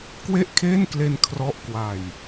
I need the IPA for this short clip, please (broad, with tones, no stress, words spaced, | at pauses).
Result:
kwe˥˩ʔkʰeː˥˩nkle˧n kʰrɔ˦˥ʔkwa˧j